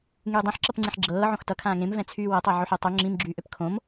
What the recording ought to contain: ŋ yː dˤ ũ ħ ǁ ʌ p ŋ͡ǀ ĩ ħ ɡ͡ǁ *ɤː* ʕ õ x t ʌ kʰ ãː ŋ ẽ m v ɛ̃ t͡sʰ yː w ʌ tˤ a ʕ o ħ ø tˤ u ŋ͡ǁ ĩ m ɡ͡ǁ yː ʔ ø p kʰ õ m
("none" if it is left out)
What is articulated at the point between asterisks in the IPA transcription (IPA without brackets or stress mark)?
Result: ɤː